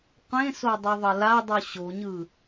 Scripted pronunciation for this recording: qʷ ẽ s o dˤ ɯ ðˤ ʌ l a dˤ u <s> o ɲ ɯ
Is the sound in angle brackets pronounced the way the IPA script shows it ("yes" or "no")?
no